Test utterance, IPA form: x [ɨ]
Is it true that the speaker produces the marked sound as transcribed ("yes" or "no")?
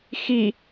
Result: no